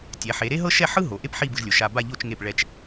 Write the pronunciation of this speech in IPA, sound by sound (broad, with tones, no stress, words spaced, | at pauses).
tʲɛ˩˧ħe˩˧ɾe˥ ɦɤ˥ʃɛ˥˧ħɯ˥ ɦo˩˧ʔe˥p ħi˥˧bɯ˧ʒlʲo˩˧ ʃa˧ba˥˧ʎo˥˧t͡ʃ ŋe˧˩pɭɛ˧˩t͡ʃ